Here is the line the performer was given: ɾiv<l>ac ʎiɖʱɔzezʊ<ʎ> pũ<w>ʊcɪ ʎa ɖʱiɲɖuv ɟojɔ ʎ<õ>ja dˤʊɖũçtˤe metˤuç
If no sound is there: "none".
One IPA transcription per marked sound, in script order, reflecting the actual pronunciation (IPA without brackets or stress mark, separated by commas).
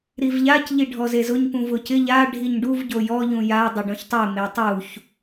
ʎ, ɲ, v, ũ